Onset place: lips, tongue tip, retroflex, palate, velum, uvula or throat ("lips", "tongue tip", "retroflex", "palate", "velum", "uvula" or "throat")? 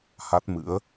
throat